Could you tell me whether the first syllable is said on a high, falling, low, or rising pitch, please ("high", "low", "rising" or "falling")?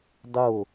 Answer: falling